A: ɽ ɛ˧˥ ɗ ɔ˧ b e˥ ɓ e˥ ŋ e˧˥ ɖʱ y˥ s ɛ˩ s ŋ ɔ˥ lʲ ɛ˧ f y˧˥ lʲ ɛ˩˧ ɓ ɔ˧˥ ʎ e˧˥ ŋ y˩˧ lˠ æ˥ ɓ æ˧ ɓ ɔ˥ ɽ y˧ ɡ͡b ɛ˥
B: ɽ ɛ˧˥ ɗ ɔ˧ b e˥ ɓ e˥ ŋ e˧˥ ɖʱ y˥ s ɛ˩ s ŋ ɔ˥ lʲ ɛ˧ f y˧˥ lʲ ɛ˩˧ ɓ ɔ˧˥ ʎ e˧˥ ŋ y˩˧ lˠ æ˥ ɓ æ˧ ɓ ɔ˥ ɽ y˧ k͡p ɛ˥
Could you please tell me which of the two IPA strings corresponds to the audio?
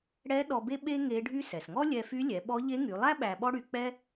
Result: B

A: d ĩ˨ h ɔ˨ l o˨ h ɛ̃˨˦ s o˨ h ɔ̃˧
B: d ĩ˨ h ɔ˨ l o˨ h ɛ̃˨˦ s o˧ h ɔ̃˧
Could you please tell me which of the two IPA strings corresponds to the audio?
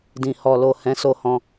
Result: B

